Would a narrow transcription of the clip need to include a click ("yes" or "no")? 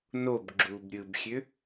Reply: yes